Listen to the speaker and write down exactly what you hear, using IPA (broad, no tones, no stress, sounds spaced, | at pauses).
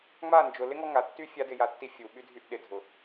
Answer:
ŋ͡m a n d͡ʒ ʊ l ɪ ŋ ɔ ŋ a tː y fʲ a d ɪ j a tː i fʲ u ɓ y dʱ y ʔ ɗ ɪ dʱ ʊ